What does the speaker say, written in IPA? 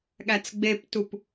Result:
ɠ æ t͡s ɡ͡b e p t u p

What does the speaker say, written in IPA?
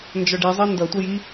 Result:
n d͡ʒ ɒ ɖ i zˤ ɜ n d ʌ tʷ ʌ j i

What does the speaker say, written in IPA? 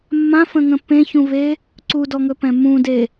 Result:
mː ã f ə̃ ŋ ə̃ p ẽ ç ũ v e | ǀ u d ɔ ŋ ɵ p ɛ̃ m ũ d e

